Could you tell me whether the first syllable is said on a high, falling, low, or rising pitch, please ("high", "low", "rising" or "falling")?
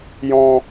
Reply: high